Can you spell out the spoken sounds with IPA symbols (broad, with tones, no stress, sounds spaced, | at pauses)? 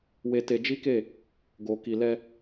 w e˧ t e˧ d͡ʒ i˦ k e˦˨ | ɡ o˨ k i˨ l ɛ˧